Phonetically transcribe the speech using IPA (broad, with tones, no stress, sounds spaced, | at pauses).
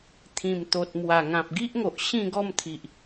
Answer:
t̪ʰ ĩ˨˩ m t̪ o˨ t̚ m w a˨˩ ŋ ã˨ p̚ ɡ i˦ ʔ ŋ o˨ ʔ ɕ ĩ˥˧ ɡ ɔ˥˧ m t̪ʰ i˨ ʔ